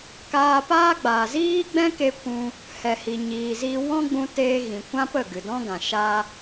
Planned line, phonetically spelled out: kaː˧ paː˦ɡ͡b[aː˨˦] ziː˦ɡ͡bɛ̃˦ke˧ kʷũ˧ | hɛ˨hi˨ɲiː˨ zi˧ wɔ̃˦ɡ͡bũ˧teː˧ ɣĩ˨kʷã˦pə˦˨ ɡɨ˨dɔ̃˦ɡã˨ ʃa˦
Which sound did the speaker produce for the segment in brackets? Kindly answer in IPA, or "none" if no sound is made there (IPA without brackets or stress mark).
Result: aː˨